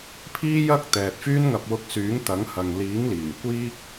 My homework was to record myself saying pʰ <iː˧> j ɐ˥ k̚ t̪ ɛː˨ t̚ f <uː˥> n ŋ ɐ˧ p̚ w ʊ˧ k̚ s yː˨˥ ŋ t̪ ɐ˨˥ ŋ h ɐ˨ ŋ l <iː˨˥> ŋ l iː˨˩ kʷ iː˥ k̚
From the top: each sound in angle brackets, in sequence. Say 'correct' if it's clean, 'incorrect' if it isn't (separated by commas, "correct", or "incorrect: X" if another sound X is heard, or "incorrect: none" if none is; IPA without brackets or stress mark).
incorrect: iː˥, incorrect: yː˥, correct